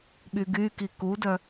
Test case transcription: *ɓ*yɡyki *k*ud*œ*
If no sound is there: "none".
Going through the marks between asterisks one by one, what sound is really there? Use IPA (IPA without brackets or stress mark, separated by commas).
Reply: ɓ, k, œ